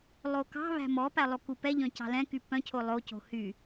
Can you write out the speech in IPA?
lˠ o k ɑ̤ β æ̤ m ɔ p æ lˠ o k u p ɛ ʎ œ̃ c ɑ̤ l ɛ̃ k y p œ̃ cʰ o lˠ o c o̤ h y

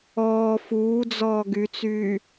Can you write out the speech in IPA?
ɔː f uː d͡z ɔː ɡ y t͡s yː

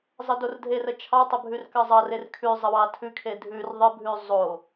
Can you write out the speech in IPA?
zˤ ə d o r dʱ e r ə t͡ʃʰ ɑ tˤ ə bʱ ʉ r k ɑ zˤ ɑ r e r kʰ ʉ zˤ ə w ɑ tʰ ʉ kʰ e dʱ ʉ r ðˤ ə bʱ ʉ zˤ o

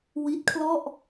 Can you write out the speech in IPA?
w i˦˥ t̚ kʰ l ɔ˥˩ ʔ

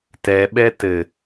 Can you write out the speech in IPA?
t ɛ ɓ ɛ t ɘ

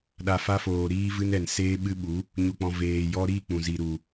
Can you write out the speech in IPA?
ɗ a˨ f a˧ f oː˨ ɾ iː˧ v ɨ˧ n ɛ˨ n s eː˧ ɓ ɨ˧ ɓ u˨˦ | ɲ u˨ k͡p ɔ̃˨ v eː˨ j ɔ˧ ɾ i˦˨ k͡p ũ˨ z i˨ ɾ u˨

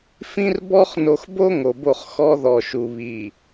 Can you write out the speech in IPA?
f ĩ˦ r b ɔ˦ χ n o˨ x b o˦ ŋ o˨ b o˦˨ χ x ɔ˦ ð ɔ˨ ʃ u˨ β i˨

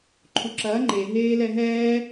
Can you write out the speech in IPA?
ǃʰ u ǁ ɐː ŋ͡ǃ e ɦ eː l ɛ ɦ ɛː

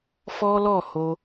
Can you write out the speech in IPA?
f ɔ˦ l ɔ˦˨ h o˧

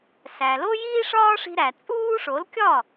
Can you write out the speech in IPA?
s æ˩ l o˥ j iː˥ ʂ ɒː˥ ʂ i̤˧ ɾ æ˩ t͡sʼ uː˥ ʂ o˩˥ l kʲ ɒ˥˩

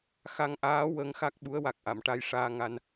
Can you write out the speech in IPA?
x a˧ ŋ ʔ aː˧˥ w ə˧˥ ŋ x a˦˥ k̚ ɓ u˧˥ ə̯ w a˨˩ k̚ ʔ a˨˩˨ m ʈ a˧ j ʂ aː˧ ŋ a˧ n

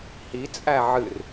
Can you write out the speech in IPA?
h i t͡sʼ æ ʕ ɨ r

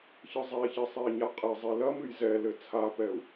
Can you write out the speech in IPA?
ç ɨ zˤ e i̯ ç i sˤ e i̯ ɲ a qʼ e zˤ i l ɐ m ɨ j z ɛ l ɘ t͡sʰ a p ɛ u̯

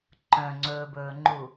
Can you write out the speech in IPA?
ǃ œ̃ ŋ͡ǀ ɵː b ɵː ŋ͡ǃ u

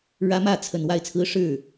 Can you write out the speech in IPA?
ɻ ä˦ m ä˥˨ t͡sʰ ə˨˩ n w a˥˨ ɪ̯ t͡sʰ ɹ̩˦ ʂ ɻ̩˥˨

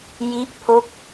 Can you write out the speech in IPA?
j i˥˩ ʔ pʰ o˥˩ k̚

